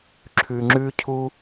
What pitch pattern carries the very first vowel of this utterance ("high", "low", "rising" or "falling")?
low